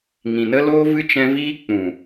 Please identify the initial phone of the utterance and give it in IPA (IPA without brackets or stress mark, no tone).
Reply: ŋ